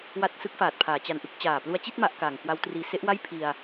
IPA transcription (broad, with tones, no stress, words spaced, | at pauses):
wa˥˩t̚ sɯ˦˥k̚faː˨˩t̚pʰaː˩˦ t͡ɕa˧nʔɯ˦˥k̚ t͡ɕaː˨˩plu˧a̯t͡ɕi˥˩t̚ ma˦˥ʔkaː˨˩ŋ kwa˦˥wtriː˧ se˦˥ʔwa˥˩j pʰi˧a̯